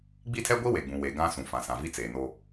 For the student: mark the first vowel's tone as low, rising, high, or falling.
falling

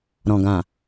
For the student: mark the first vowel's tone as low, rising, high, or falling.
low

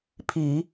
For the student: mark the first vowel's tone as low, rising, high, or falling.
low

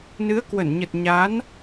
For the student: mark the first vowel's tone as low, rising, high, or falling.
rising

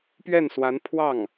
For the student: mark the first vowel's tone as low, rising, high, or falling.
falling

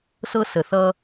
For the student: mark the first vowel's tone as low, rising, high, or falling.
high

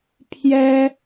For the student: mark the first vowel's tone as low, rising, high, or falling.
high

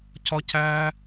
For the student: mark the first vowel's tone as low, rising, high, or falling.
high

